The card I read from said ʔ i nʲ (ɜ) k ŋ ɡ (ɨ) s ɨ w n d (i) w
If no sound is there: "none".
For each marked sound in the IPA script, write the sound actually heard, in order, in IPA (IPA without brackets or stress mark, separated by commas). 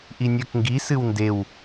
ɜ, i, e